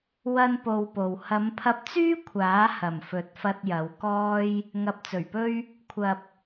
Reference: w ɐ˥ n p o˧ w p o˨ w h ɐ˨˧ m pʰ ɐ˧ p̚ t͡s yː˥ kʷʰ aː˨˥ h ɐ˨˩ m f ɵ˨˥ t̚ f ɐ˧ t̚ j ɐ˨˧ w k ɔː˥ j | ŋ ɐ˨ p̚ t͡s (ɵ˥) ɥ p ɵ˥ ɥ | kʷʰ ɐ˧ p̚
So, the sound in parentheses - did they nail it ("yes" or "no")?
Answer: no